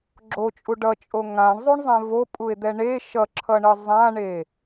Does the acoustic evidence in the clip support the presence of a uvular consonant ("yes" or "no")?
no